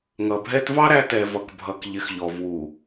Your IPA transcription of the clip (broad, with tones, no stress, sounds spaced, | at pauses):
ŋ ʌ˨ bʱ ɛ˦ t v ɑ˦ ɾ æ˦ t ɛ˨ v ʌ˨ k bʱ ʌ˨ k ʎ ɪ˨ x ʎ ɔ˨ v w u˨